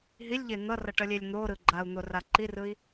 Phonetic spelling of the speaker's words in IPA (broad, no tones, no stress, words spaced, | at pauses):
ɦilʲʎe n̪ʌrʌʈʌlʲelʲ n̪oɾɯ ɡ͡ǃau̯n̪ora ǃirɯi̯